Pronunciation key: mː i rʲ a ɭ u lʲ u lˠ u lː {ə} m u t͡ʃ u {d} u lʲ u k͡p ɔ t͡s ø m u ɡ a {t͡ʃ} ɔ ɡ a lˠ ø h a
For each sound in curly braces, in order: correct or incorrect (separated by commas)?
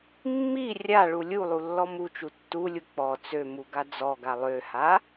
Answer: incorrect, incorrect, incorrect